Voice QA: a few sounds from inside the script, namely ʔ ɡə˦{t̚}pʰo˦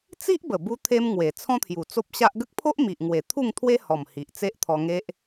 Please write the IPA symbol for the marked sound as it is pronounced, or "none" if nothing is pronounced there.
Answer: k̚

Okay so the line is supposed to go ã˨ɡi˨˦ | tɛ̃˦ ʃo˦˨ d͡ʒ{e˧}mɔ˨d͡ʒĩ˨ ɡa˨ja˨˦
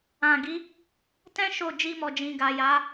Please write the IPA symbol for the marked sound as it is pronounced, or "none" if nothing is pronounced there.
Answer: i˧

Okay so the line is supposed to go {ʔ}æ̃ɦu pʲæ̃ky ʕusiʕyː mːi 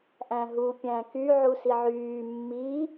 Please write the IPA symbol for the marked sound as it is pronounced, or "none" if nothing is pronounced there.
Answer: ʔ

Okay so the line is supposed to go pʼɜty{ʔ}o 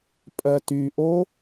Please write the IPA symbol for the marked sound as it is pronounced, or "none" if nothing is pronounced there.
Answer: ʔ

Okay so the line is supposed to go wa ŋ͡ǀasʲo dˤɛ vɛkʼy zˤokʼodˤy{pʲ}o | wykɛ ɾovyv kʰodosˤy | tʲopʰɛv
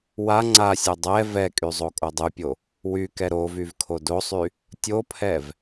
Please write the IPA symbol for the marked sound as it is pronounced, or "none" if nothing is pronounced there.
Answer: pʲ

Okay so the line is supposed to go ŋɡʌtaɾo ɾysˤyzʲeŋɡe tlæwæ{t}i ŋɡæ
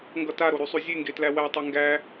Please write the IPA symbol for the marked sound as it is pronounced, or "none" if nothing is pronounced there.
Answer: tˤ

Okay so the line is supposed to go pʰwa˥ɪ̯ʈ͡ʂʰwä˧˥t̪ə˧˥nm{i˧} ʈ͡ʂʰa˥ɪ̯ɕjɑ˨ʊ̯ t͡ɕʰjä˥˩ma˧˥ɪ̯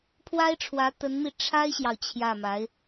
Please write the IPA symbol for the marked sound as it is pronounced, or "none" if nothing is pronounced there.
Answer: i˧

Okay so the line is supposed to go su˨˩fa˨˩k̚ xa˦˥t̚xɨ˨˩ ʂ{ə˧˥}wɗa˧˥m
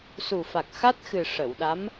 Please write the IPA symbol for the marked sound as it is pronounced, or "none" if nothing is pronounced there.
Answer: ə˨˩˨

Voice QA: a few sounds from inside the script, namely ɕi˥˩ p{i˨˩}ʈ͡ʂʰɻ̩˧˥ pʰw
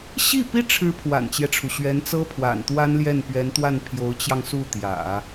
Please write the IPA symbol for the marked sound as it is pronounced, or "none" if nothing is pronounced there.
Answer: i˥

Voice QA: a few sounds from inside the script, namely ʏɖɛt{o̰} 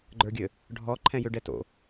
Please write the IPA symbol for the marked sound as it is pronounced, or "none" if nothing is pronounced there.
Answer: o̰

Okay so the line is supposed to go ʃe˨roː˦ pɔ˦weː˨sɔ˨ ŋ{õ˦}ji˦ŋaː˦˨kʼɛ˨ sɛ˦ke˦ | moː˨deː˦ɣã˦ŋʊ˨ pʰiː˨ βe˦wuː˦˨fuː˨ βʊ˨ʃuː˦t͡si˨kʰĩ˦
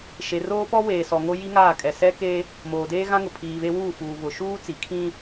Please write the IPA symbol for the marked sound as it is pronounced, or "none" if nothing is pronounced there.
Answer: o˦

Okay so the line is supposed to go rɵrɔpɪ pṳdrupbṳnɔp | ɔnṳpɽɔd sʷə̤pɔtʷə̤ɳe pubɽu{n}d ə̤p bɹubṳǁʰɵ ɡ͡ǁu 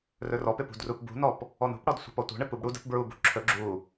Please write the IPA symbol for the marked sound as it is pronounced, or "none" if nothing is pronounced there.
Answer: none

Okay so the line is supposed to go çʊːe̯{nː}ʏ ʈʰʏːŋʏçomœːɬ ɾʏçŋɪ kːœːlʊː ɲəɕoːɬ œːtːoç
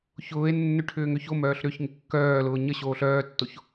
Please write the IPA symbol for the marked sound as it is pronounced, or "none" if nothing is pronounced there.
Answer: nː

